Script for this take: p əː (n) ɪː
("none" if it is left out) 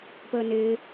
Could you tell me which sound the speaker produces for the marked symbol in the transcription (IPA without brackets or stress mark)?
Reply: n